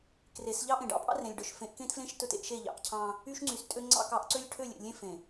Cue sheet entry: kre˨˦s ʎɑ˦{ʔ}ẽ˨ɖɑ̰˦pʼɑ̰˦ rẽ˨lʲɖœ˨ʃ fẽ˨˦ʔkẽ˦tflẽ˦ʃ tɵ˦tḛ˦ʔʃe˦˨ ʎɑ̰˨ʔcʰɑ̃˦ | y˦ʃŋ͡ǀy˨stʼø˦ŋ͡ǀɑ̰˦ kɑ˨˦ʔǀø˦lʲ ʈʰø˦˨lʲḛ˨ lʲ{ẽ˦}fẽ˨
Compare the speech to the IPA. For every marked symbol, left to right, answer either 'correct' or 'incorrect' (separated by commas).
correct, correct